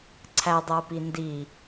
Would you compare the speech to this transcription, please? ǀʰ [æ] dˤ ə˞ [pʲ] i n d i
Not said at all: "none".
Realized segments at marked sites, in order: æ, p

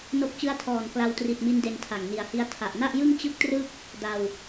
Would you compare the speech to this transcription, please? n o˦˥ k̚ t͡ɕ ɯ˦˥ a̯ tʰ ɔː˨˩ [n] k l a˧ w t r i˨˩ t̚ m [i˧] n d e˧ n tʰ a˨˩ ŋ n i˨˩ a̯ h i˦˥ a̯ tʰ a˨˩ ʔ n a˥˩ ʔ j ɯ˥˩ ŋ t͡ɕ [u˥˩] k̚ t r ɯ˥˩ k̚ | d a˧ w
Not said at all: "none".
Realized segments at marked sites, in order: n, i˧, ɯ˥˩

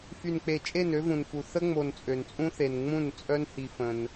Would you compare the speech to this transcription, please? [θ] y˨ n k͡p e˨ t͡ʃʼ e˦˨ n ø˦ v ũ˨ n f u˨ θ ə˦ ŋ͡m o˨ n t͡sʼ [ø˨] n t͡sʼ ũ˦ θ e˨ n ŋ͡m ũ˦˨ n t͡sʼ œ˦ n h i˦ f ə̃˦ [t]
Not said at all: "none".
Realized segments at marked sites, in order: f, ø˨, n

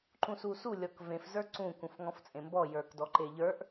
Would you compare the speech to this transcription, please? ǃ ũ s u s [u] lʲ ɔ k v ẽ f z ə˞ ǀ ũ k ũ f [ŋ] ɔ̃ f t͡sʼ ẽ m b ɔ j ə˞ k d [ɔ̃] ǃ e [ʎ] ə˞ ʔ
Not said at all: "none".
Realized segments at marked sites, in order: u, ŋ, ɔ, ʎ

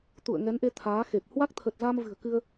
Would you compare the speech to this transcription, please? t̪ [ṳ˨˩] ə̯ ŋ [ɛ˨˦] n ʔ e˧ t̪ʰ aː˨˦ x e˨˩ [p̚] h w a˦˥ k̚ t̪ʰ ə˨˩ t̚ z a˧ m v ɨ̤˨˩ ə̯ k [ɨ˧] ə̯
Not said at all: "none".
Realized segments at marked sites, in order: ṵ˧˨, ɛ˨˦, p̚, ɨ˧

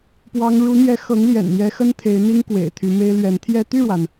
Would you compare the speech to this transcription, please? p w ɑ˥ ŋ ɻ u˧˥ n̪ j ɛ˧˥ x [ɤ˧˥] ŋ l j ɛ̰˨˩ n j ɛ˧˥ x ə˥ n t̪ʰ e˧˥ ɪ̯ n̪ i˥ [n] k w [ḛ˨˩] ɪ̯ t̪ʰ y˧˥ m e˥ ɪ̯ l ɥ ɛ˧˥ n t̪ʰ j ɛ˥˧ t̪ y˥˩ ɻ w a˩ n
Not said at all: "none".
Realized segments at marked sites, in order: ɤ˧˥, ŋ, ḛ˨˩

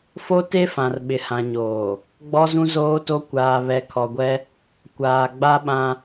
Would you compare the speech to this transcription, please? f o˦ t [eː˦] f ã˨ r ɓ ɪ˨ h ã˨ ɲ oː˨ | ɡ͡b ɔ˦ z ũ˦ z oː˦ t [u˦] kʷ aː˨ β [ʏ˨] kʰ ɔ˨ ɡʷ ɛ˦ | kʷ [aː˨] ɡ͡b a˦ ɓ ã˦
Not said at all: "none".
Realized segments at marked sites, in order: e˦, o˦, ɛ˨, aː˨

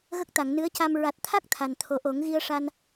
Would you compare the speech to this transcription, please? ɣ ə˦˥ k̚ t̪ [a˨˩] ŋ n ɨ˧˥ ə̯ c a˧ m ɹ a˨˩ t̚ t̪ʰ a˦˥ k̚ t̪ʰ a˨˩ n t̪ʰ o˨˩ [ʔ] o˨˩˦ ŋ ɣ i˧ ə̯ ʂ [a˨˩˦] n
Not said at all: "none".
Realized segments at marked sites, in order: a˨˩˨, ʔ, a˧

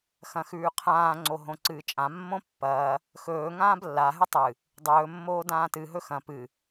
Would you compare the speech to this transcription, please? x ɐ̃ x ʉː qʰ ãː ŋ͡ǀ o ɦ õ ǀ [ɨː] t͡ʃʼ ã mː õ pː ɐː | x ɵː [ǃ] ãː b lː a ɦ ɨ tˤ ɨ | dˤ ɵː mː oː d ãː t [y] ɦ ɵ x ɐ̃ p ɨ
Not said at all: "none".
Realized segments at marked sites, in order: ɨː, ŋ, ɨ

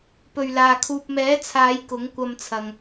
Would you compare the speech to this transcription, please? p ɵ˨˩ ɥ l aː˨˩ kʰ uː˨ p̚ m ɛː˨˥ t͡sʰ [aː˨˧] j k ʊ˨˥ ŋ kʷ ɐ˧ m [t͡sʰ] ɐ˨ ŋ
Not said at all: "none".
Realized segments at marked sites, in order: aː˨˧, t͡sʰ

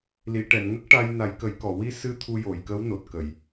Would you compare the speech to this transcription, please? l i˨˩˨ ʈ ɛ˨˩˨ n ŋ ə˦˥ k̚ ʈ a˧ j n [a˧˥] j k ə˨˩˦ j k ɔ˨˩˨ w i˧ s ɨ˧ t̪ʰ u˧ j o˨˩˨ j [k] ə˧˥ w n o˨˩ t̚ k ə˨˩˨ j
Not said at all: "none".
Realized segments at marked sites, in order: a˨˩˦, k

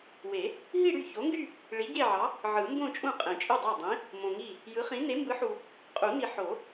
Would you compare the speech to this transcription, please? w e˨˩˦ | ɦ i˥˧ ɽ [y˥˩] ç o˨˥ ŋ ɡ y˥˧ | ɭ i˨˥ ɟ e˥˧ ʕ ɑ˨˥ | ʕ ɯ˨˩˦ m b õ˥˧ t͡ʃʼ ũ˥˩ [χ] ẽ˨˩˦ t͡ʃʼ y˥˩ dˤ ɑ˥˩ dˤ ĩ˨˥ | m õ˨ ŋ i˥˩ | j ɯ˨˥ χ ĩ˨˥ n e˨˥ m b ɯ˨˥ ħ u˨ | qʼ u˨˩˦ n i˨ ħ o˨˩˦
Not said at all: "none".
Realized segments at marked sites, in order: y˥˩, qʼ

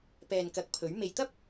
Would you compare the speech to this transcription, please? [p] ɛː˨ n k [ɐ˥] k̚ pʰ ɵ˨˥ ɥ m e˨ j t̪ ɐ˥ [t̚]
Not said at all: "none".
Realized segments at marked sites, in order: p, ɐ˨˥, p̚

